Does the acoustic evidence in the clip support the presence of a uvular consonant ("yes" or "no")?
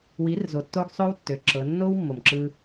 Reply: no